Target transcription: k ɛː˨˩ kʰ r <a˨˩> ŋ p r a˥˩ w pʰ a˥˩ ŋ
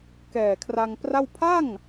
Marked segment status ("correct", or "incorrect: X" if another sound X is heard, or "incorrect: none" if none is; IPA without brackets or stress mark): incorrect: a˧